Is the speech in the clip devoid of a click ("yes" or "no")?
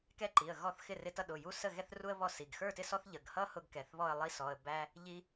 no